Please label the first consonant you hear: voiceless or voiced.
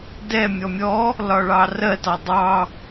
voiced